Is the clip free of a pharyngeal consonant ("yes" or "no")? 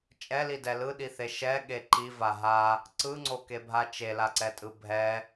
yes